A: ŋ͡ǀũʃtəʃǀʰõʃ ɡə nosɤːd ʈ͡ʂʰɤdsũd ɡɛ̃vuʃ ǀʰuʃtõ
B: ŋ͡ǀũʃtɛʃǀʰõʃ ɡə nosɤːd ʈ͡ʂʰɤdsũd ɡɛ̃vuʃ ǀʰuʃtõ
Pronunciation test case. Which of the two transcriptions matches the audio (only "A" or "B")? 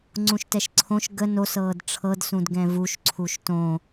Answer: B